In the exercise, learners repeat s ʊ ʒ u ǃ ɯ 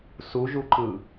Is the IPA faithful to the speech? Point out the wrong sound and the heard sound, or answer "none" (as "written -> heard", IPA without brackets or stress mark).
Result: ʊ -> u